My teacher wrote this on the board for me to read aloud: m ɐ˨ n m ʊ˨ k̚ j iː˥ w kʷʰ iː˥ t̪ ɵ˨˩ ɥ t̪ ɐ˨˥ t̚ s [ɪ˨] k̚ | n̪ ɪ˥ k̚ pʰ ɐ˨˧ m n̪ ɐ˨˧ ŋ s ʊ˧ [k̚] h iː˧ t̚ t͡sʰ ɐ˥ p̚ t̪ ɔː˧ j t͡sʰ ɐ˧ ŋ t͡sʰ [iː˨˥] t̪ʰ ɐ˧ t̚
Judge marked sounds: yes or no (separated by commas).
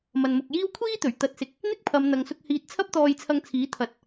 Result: no, yes, yes